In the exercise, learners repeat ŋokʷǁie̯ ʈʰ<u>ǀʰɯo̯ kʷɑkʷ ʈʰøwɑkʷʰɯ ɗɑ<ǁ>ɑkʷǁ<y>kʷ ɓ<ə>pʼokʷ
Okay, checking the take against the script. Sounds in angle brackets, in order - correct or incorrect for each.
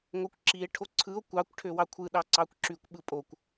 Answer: incorrect: o, incorrect: ǀ, correct, incorrect: ɯ

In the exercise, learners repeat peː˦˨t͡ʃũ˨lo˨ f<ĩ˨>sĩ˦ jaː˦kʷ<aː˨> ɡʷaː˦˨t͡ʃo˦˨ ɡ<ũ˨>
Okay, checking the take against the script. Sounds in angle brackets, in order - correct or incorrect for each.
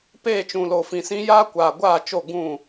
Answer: correct, correct, incorrect: ũ˦˨

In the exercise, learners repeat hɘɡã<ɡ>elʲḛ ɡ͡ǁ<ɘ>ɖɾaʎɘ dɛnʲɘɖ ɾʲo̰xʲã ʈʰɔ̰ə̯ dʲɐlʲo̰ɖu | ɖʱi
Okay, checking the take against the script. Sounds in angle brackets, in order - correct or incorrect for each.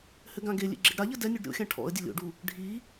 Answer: correct, correct

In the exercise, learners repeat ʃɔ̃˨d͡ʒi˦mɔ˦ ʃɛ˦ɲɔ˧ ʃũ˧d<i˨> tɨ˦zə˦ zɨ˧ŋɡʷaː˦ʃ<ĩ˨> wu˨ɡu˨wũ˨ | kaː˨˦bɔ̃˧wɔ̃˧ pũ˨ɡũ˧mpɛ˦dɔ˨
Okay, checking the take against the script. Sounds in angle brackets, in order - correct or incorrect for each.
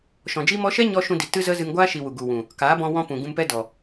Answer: correct, incorrect: i˨

